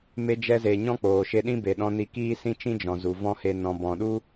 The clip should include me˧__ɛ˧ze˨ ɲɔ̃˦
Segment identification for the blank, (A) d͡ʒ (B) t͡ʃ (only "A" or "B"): A